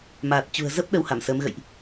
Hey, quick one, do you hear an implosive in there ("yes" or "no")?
yes